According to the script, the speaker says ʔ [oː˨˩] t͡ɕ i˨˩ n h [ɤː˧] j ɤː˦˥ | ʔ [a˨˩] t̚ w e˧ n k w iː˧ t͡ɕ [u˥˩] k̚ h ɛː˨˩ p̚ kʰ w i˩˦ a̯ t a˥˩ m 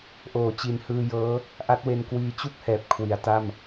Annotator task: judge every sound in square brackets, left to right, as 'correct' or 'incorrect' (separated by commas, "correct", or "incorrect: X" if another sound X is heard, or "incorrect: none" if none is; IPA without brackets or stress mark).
incorrect: oː˩˦, incorrect: ɯː˧, incorrect: a˦˥, correct